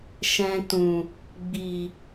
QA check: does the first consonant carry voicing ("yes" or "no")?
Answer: no